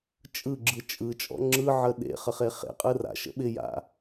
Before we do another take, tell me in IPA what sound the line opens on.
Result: t͡ʃʼ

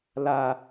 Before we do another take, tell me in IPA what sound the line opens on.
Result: l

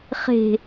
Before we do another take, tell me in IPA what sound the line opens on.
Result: χ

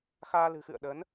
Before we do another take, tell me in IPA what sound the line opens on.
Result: x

